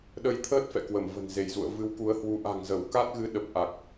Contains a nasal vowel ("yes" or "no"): no